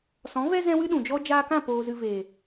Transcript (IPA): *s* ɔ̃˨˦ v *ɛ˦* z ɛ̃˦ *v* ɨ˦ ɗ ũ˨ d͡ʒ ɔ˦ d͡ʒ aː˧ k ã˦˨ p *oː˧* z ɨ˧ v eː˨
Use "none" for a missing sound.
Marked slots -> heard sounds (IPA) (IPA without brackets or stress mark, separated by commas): s, ɛ˦, w, oː˧